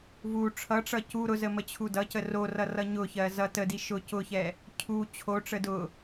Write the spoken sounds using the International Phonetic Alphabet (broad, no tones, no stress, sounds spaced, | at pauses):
v u ʈ͡ʂʰ ʌ ʈ͡ʂ ʌ c u ɾ ʊ z ə m ə t͡ɕʰ u d ʌ c ə r o r ʌ r ʌ ɲ ʊ ç ɜ z ʌ t ə d i ʃ ʊ c ʊ ç ɛ | cʰ u t͡ɕʰ o ʈ͡ʂ ə d ʊ